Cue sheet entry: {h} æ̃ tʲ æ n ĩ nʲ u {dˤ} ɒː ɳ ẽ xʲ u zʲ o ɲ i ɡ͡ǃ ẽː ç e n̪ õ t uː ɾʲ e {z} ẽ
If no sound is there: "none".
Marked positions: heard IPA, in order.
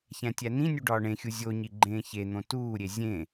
ç, ɖ, zʲ

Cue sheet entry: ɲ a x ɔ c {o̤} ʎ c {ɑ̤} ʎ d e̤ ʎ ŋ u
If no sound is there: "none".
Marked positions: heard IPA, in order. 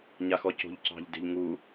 o̤, ɑ̤

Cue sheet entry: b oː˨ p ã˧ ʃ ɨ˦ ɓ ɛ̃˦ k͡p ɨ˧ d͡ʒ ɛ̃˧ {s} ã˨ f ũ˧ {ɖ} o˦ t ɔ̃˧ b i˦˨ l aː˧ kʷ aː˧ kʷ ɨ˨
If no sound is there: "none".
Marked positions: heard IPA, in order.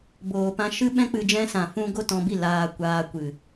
s, ɡ

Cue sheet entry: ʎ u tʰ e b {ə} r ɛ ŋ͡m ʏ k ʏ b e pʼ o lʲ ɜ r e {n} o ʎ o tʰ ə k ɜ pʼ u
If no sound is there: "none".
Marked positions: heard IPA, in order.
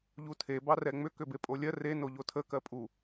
ɑ, n

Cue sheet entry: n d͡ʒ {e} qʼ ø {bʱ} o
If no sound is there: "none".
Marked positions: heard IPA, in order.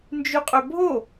y, bʱ

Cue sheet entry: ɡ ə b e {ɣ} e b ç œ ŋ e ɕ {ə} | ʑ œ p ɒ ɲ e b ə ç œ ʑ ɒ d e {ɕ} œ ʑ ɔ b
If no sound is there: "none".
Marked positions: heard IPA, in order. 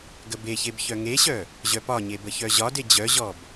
ç, œ, d͡ʑ

